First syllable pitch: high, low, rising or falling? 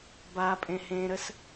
low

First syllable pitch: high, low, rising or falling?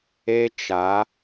high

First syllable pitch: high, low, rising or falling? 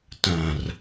low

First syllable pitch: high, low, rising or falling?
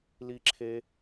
high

